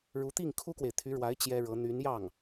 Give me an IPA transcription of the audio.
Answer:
ɻ u˧˥ t̪ i˥˩ ŋ kʰ u˥ k w e˨ ɪ̯ t̪ʰ y˧˥ ɻ w a˧˥ ɪ̯ t͡ɕ j ɛ˥ ɻ ɤ˧˥ n̪ y˧˥ n j ɑ˥˩ ŋ

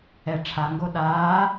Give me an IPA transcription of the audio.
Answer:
ɛ ʈ͡ʂʰ a ŋ ɡ o ɗ aː

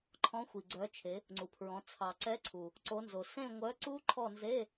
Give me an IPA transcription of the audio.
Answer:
ǃʰ ɔ̃˨˥ xʷ i˩ ɡ͡ǀ œ˩˧ t͡ʃʰ e˩˧ | ŋ͡ǀ u˩ pʰ ɹ ɔ̃˩˧ t͡sʰ ɑ˩ ǀ ɛ˨˥ ǀʰ u˩ | ǀ o˩˧ n z o˩ s ẽ˦˨ ŋʷ œ˨˥ ǀ u˦˥ ǃʰ ɔ˦˨ n z e˧˥˧

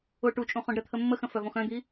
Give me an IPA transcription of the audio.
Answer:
ʊ ʈ u t͡ʃʼ ũ χ õ ɖ ɾ ə t̪ʰ ə mː ə x ə̃ f œ v õ x œ̃ d̪ i

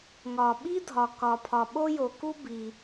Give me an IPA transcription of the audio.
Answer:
ŋ ɒ˩ ɓ i˥ dʱ ɒ˩ k ɒ˩ pʰ ɒ˩ ɓ o˥ j o˩ k u˥ b i˩

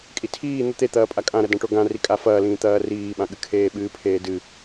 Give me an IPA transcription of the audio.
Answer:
kʼ i tʰ iː n̪ o t̪ e t̪ ɐː pʼ a kʼ ã ɾ ɐ d ã ʈ o ɡ ã r i kʼ a f ɐː l ĩː t̪ ɐː r iː ɓ ã ɠ ɨ kʰ eː ɓ ɨː pʰ eː d ɨ

